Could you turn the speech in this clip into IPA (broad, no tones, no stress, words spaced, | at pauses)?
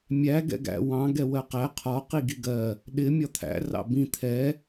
mʲæ ɡɛ̰ɡæ̰ wɑ̃ ɡɛwɜqæ qʰɒ qiɡiɡɜ | ɗɪ mʲɒt̪ʰæ̰ rɑ̰bĩ t̪ʰɛ